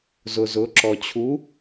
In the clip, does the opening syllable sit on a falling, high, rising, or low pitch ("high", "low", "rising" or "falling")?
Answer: low